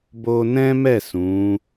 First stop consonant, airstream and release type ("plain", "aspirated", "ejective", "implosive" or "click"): plain